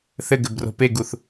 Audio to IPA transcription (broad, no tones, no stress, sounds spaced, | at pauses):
θ ɘ ɡ ɘ b r o̤ p e ɡ u θ